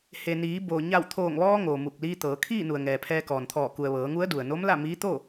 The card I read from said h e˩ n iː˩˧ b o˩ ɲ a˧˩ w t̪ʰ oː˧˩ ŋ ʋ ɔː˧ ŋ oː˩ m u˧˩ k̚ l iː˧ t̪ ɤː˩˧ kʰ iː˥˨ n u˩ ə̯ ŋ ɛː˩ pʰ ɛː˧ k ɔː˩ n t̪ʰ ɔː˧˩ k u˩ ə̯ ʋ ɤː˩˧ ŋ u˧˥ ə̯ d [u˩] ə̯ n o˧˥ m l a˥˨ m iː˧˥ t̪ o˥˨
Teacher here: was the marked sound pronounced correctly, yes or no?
yes